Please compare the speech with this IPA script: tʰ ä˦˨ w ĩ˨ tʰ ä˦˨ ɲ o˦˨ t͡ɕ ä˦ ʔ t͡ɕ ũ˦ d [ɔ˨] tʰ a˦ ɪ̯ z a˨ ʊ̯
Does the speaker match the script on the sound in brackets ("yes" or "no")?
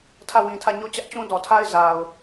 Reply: yes